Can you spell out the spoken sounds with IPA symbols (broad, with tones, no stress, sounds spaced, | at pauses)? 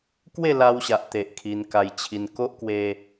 k w e˥˧ l a˧ w ɕ a˨ ʔ t̪ e˨ ʔ kʰ i˧ n k a˧ j t͡ɕʰ i˧ n k o˦ ʔ k w e˧